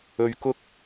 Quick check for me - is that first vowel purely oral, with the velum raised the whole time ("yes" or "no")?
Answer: yes